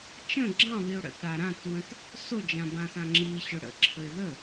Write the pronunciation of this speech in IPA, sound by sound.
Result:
t͡ʃ ə̃ ɡ͡ǁ ɑ̃ β i ʊ̯ ɽ ə̰ t ɽ a ɾ ã t w ə̃ t | s o d͡ʒ ã b ã s ã ŋ͡ǁ i ɕ ʊ ɽ ə̰ ǁʰ ə ɪ̯ ð ə

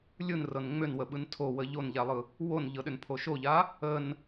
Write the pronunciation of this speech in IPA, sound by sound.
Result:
lʲ ɯ n r ɤ n ŋ͡m ʏ n w ə ɓ ɯ n tʰ o w ə ʎ o n ʎ a lˠ ɯ | w o n ʎ ɤ ɗ ʏ n pʰ o ʃ o ʎ a | ə n

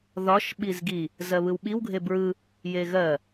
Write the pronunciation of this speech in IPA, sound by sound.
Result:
ð ɒ ʃ ɓ i z ɡ i | z ɜ β ɯ w ɓ i w ɡʱ e b ɹ ɯ | j e ɣ ɜ

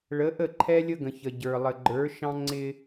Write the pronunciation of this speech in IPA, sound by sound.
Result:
ɭ ə˨˦ ʔ ə˦˨ ǃʰ ɛ˦ lʲ ə˦ ɡ ə̃˨ ç ə˨ ɟ ə˞˨ lˠ ə˨ ɡ͡ǃ ə˞˨˦ ʃ ɑ̃˦ ŋ͡ǀ ɪ˦

